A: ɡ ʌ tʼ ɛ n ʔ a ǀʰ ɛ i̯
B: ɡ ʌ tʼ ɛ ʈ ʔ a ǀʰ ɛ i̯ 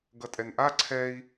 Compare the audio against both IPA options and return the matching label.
A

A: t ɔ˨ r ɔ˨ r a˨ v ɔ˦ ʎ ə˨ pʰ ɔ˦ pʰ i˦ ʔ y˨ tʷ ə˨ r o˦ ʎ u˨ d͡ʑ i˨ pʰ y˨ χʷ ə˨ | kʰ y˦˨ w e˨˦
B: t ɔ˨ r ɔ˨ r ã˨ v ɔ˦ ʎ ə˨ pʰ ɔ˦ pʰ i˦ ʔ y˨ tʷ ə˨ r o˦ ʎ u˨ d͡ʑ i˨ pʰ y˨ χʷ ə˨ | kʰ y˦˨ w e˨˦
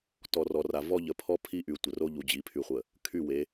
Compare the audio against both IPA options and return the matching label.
A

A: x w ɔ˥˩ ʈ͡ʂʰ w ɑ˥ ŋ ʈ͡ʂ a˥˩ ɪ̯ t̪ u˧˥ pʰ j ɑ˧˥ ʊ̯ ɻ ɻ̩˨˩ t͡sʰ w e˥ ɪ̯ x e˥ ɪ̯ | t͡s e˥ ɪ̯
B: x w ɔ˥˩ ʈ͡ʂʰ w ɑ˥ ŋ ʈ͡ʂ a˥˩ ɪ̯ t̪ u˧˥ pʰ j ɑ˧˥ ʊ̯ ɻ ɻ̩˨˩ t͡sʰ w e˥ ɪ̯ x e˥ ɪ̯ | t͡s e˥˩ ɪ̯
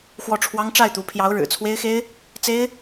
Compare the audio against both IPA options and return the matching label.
A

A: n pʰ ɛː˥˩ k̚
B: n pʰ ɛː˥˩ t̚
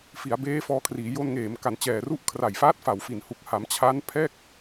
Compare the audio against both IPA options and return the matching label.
A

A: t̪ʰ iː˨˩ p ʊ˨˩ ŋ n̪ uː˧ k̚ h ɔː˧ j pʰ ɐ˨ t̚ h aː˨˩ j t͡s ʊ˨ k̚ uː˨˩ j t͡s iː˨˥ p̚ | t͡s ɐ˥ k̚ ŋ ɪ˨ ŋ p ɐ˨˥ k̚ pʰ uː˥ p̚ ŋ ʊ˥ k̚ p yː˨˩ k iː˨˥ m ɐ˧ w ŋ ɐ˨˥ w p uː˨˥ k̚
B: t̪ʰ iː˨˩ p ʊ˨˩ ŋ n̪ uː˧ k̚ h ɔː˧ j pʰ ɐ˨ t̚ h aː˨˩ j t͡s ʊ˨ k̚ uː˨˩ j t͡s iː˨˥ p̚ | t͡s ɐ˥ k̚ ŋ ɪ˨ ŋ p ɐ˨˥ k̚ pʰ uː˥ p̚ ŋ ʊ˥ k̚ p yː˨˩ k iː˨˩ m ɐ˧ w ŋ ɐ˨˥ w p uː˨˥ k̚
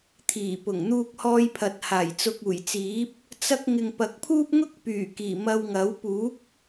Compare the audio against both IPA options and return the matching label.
B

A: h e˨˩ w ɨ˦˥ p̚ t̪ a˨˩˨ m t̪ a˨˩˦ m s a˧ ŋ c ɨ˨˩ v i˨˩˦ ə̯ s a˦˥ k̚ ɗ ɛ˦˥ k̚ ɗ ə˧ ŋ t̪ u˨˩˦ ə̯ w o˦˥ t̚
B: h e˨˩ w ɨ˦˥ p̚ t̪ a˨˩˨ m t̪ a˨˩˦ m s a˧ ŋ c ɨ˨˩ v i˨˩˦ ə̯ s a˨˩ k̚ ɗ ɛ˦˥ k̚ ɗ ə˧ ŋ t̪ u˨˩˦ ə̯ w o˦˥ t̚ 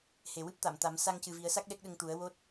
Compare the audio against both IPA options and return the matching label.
A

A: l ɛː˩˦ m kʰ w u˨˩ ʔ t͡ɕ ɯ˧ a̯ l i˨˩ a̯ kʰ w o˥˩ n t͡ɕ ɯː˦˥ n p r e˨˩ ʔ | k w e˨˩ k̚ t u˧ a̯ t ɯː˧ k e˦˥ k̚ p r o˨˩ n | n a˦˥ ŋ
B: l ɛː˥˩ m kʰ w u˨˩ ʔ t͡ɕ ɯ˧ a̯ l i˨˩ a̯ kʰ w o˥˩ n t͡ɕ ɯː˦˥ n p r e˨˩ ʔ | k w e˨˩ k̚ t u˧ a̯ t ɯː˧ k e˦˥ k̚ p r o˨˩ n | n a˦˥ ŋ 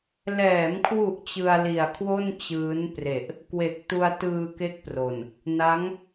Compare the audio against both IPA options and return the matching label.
A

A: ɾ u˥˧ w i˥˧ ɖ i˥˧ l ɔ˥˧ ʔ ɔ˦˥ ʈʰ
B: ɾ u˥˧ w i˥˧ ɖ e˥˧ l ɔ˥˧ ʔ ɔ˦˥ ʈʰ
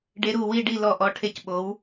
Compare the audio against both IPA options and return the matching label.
A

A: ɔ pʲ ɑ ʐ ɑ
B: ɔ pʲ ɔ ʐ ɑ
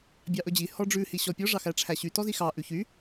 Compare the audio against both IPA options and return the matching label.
B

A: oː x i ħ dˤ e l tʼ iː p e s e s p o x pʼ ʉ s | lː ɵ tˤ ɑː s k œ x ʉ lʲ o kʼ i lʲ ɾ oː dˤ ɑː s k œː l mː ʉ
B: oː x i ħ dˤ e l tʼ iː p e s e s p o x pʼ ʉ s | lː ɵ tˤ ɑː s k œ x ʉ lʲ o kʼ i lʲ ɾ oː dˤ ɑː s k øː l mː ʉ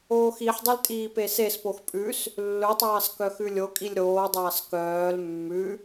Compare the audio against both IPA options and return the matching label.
A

